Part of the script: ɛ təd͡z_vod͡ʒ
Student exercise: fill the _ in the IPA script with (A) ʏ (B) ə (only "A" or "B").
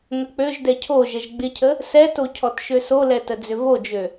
A